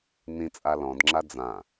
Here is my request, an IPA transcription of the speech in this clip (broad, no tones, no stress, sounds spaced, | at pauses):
n ĩ t͡sʼ a l ɔ̃ d ŋ͡ǁ a d͡z ã